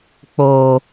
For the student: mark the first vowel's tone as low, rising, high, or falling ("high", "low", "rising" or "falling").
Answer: high